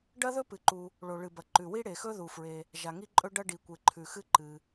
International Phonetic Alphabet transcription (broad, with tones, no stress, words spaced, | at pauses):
ɖɐ˥ðɵ˥pɨ˩ǃu˩ | ɭo˩ɭɨ˩bɐ˩ ǃʉ˩wi˥ɽe˩xɵ˥ ðu˩fɹe˩ | ʒa˩ŋi˥ǃʼɵ˥ ɖɐ˥ ɖi˩kʷe˩ǃʰʉ˩ xɨ˥ ǃɨ˩